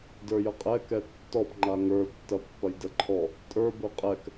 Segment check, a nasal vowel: absent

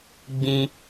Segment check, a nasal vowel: present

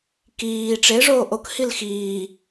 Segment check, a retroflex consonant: present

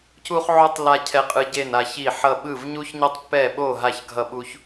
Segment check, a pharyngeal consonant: present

